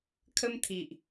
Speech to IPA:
kʰ ə˦ m t̪ʰ i˨ ʔ

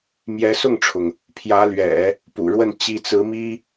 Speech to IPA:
m j ɛ˧˥ s ʊ˥˩ ŋ ʈ͡ʂʰ ʊ˩ ŋ | pʰ j ä˧˥ l ɥ ɛ̰˨˩˦ | p ṵ˨˩ ɻ w ə˥˩ n t͡ɕ i˥ t͡s ɹ̩˧˥ m i˥

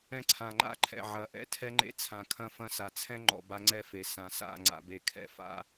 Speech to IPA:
ɛ̃˦ ǀʰ ã˨ ŋ͡ǃ a̰˦ ǃʰ ɛ̰˨ ʕ ɐ˨˦ ʔ ɛ̰˦ tʰ ɛ˦ ŋ͡ǃ ḛ˦ t͡sʰ ã˨ kʰ ɐ̃˦ f ɐ̃˦ s a˨ t͡sʰ ɛ̃˦ ŋ͡ǃ ɔ̰˨ b a˦ ŋ͡ǀ ɛ˦ f e˨ s ã˨ s a̰˦˨ ŋ͡ǀ a̰˨ b e˨ kʰ ɛ̰˨ f a̰˦

